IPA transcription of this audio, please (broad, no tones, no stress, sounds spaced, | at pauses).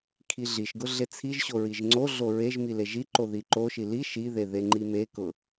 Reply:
kʰ i ɮ i ʃ ɡ ʊ ɮ e t͡sʰ i ʒ ɕ o ɹ i ʒ ŋ͡ǀ o ɮ o ɹ e ʒ m i l e ʒ i ǃ o ð i ǃ o ʃ i l i ʃ i ð e ð e ŋ͡ǃ i m e k ʊ